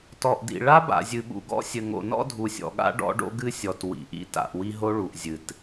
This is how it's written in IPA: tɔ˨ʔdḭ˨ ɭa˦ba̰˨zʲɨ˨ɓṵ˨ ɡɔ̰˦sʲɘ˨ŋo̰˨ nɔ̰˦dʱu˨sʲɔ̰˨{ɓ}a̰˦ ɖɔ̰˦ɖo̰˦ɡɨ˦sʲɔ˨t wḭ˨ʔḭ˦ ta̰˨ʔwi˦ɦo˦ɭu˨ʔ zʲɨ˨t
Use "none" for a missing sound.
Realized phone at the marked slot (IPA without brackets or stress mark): ɠ